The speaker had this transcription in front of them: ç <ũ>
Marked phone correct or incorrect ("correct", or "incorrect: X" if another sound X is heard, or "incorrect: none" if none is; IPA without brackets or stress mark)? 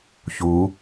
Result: incorrect: u